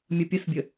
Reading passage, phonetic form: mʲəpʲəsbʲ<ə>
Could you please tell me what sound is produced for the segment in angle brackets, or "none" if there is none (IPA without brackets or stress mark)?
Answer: ə